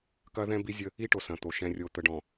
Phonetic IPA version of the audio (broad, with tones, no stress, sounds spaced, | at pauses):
k ɐ˦ ð ɛ̃˦ b i˦ zʲ ə˦ | i˦ ʈ o˨ s ɐ̃˨ t̪ o˨ ʃ ɛ̃˨ rʲ o˨ t̪ ə˨ ɖ ɔ̃˨